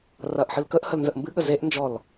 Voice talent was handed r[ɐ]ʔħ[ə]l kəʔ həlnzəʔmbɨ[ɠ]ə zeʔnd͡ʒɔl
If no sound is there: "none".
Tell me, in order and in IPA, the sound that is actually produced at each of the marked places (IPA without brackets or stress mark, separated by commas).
ɐ, ɨ, ɠ